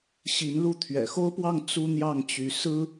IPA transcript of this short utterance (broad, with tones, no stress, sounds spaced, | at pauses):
ɕ i˧˥ n l u˥˩ t̪ʰ ɥ ɛ̰˨˩ x o˥ ʊ̯ p w ɑ˥˩ ŋ t͡s u˥ n̪ j ɑ˥˩ ŋ t͡ɕ y˧˥ s ɹ̩˥